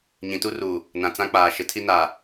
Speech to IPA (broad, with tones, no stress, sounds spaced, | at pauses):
ɲ ĩ˨ t u˦ r uː˨ | n ã˨ t͡s ã˦ k͡p aː˨ ʃ ɪ˨ tʰ i˦ n aː˨